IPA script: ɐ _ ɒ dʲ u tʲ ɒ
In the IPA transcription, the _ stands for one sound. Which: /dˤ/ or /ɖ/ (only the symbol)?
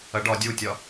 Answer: ɖ